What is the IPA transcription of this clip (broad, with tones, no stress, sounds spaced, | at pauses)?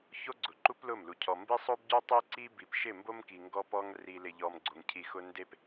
ç o˦ ɡ͡ǀ ʊ˨ ǃ u˦ p l ʊ˦˨ m l u˨ cʰ ɔ˨ m b i˦ sˤ o˦ b ɟ o˦ tˤ i˦ ǀ i˦ b i˨ p ʃ ɪ˦˨ m b o˦ m k i˨ ŋ ɡ ɔ˦ p ɔ˦ ŋ r i˨ l ɪ˨ ʎ ɔ˨ m ɡ͡ǀ o˨ ŋ cʰ i˨ x ʊ˨ n d e˨ p